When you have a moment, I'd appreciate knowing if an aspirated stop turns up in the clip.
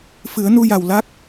no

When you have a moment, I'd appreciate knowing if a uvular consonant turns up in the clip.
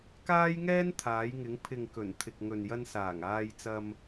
no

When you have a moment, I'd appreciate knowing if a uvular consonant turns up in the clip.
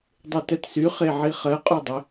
yes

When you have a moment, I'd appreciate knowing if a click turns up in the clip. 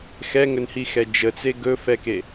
no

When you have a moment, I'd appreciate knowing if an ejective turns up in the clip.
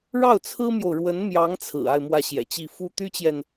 no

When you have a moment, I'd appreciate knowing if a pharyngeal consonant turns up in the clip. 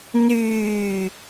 no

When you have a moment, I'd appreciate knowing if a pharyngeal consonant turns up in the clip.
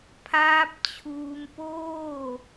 no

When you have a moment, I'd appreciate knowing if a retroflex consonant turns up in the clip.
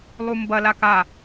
no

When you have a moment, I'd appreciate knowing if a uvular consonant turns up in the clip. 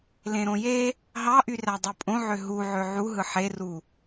no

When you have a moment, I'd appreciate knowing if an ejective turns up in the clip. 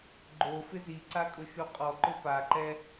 yes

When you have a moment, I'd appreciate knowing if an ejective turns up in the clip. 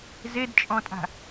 yes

